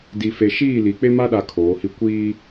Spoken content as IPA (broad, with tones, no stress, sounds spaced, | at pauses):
d i˨ f e˨ ʃ iː˦˨ l i˨ k͡p e˦ m a˦ ɗ a˨ kʰ oː˨˦ h i˦ kʷ iː˦